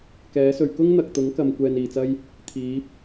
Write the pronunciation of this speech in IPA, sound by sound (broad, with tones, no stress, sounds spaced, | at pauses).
k ɛː˨˥ s ɵ˨ ɥ k ʊ˥ ŋ n̪ ɐ˨ k̚ t̪ ʊ˨˥ ŋ k ɐ˨ m kʷ ɛː˧ n iː˨˩ t͡s ɐ˥ j | t̪ʰ iː˨˥ p̚